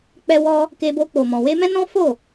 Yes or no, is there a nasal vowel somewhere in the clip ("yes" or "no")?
yes